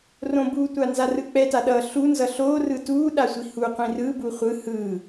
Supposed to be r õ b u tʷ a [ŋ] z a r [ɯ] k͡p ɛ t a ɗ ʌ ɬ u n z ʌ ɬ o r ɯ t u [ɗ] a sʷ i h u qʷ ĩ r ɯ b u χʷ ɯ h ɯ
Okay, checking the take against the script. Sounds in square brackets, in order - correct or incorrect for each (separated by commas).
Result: incorrect, correct, correct